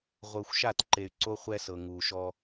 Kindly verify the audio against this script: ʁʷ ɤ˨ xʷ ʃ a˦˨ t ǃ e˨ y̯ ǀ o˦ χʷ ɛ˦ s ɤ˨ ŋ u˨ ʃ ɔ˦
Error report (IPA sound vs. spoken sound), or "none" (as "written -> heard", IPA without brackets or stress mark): none